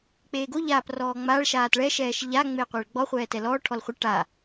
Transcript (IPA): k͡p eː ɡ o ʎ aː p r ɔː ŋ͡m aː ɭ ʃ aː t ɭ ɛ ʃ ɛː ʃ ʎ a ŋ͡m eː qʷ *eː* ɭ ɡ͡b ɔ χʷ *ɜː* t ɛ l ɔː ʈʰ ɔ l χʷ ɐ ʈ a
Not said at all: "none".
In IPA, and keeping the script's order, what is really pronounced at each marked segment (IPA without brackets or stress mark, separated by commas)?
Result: eː, ɛː